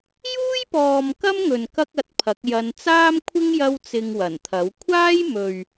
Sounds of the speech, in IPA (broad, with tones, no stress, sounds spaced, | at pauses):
j uː˥ j p ɔː˨ m k ɐ˥ m ŋ ɵ˨ n k ɐ˥ k̚ ɐ˧ t̚ pʰ ɐ˨˥ k̚ j ɐ˨˧ n t͡s aː˥ m kʷʰ ɪ˥ ŋ j ɐ˥ w t͡s ɪ˧ ŋ w ɐ˨˩ n t̪ʰ ɐ˨˥ w kʷʰ aː˥ j m ɵ˨ ɥ